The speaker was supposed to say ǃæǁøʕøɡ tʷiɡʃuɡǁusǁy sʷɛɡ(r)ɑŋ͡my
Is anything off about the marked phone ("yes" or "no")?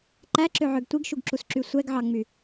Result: yes